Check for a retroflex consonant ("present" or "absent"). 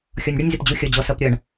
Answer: present